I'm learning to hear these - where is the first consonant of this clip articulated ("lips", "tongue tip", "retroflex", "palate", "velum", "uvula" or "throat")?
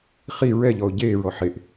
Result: uvula